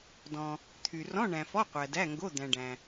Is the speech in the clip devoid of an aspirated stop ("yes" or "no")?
no